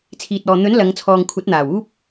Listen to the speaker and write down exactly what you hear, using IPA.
t͡sʰ iː˨ t̚ ɔː˨ n̪ ɵ˨˥ n l ɐ˨˧ ŋ t͡sʰ ɔː˨ ŋ kʷʰ ɐ˨˥ t̚ n̪ aː˨˩ w uː˥ p̚

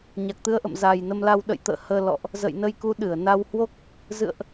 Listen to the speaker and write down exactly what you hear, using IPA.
ɲ a˨˩ k̚ t̪ ɨ˨˦ ə̯ ʔ ə̰˧˨ m z a˨˩ j n ə˧ m l a˧ w ɗ ə̰˧˨ j t̪ ə̰ː˧˨ h əː˧ l ɔ̰˧˨ ʔ | z ə̰˧˨ j n ə˧ j k u˨˦ ɗ ɨ˧˩ ə̯ n a˧ w h w o˦˥ k̚ | z ɨ̰˧˨ ə̯ ʔ

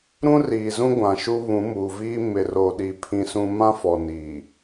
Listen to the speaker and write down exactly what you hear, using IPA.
ɾ ũ˦ r iː˨ z ũ˦ ɡʷ ã˨ ʃ u˦ β ũ˨˦ m uː˨ v iː˦ m ɪ˨ r o˨ ɗ i˨ pʰ ĩ˦ s ũ˦ m ã˦ f ɔ˨ n iː˨

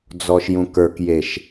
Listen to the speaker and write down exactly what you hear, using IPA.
d͡z ɔ ʃ j ũ k ə˞ k j e ʃ

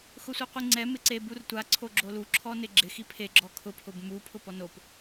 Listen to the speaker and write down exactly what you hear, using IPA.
x ʊ sʷ i qʷ i ŋ͡ǀ ɛ m ɪ ǀ e b u r tʷ a ǀʰ o ɡ͡ǁ o l u ǁʰ ɔ n ɪ ɡ͡ǁ ɪ x i pʰ e ɡ͡ǁ ɔ kʰ ʊ pʰ ʊ b m u pʰ ʊ p ɔ n o p

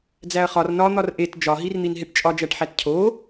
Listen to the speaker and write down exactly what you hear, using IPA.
d͡z æ ɐ̯ χ ɒ r n ɒ n̪ ɒ r ʔ e t d͡ʒ ɒ ɦ i r n̪ i n ɦ e ʈ t͡ʃʼ ɒ d͡ʒ æ ʈ ħ æ t cʰ o

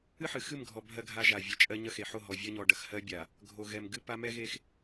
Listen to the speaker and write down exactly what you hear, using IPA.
ɨ˦ ħ ɨ˨ x ɨ˦˨ m ɡʱ ɔ˨ bʱ ɜ˦ ɡʱ a˦ ʒ a˨ vʲ ɛ˨ t͡ʃʼ ɜ˦ ɲ ɐ˦ x e˨ ħ o˦˨ ɦ ɔ˨ vʲ ɜ˦ ɲ ɔ˨ ɖ ɐ˨ x h ɜ˦ bʲ a˨ | ɡʱ o˨ ɣ ɛ˨ m ɡ ɨ˦ p a˦ m ɛ˦ ɣ e˦ x

